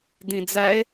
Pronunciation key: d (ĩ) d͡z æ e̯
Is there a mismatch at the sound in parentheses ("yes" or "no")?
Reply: no